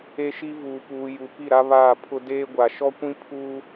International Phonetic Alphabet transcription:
e˦ ʃ i˦ v uː˨ p uː˨ j u˨ p i˦˨ ɾ a˦ β aː˦˨ pʰ ʊ˦ d eː˦ ɡʷ a˨ ʃ ɔ˦ kʷ ĩ˦ pʰ uː˦

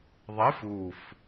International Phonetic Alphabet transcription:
ðˤ e f u f

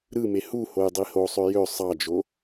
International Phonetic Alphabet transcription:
ɾ ɯ m e h u h o j dˤ i h o sˤ ø j ø sˤ ɑ d͡ʒ o

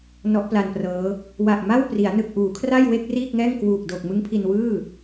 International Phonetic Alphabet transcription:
n ɔ˦˥ ʔ p l a˧ n p r ɤː˦˥ | w a˨˩ ʔ m a˥˩ w p r i˩˦ a̯ n ɯ˨˩ k̚ ʔ uː˩˦ kʰ r a˥˩ j w e˥˩ k̚ r iː˥˩ k̚ ŋ ɛː˥˩ ŋ k w uː˨˩ k̚ d o˨˩ k̚ m ɯ˦˥ ŋ pʰ i˧ n w ɯː˥˩

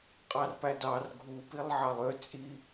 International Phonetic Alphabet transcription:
qʼ ɑ r p æ d ɑ r ɡʱ u p i lˠ ʕ ɑ lˠ ø t͡sʼ i

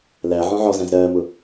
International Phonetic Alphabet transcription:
l æ ʕ ɔ̃ ʕ ɔ z æ̃ z ɾ ɜː m ʊ

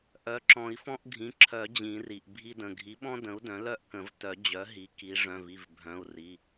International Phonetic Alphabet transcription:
ʔ œ˩˥ ǁ ɔ̃˨˩˦ i̯ f ɔ̃˦ ʔ ɡʱ ĩ˩˧˩ ǁʰ œ˨˩˦ d͡ʑ ĩ˨˩˦ r i˩ ʔ bʱ i˦ d ə̃˩˧˩ ɡʱ i˩˥ ɓ ɔ̃˦ d ə̃˩˥ u̯ d œ̃˩˥ l œ˥˩ ʔ k ə̃˨˩˦ v t œ˨˩˦ d͡ʑ œ˩˥ ɦ i˩˥ k i˩˥ ʐ œ̃˩˧˩ v i˩˧˩ v bʱ œ̃˩˧˩ u̯ r i˩˧˩

